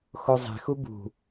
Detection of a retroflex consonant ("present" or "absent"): absent